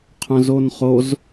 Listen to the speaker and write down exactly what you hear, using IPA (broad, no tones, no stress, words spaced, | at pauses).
qʰœ̃zonχoz